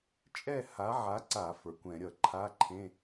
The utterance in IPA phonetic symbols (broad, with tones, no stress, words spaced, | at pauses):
t͡ʃʼɛ˥˧ha˨˥ʕa˨˥ǀa˧˩˧ fə˞˩˧kʷɛ̃˧˩˧ ɾʲʌ˧˩˧ǃʰa˧˥˧ǃʰẽ˧˥˧